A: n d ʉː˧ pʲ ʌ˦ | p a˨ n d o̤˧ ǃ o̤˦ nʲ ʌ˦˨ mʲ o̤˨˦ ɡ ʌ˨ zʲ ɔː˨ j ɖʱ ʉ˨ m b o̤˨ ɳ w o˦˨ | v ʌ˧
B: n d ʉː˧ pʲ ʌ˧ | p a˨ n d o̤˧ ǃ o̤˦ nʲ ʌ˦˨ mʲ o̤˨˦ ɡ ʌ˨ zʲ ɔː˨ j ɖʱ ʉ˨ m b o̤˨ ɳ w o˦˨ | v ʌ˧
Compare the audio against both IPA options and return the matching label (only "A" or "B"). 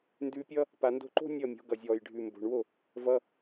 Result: A